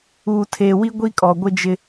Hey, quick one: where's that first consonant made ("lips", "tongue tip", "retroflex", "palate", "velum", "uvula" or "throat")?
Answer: tongue tip